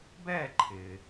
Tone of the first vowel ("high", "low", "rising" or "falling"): falling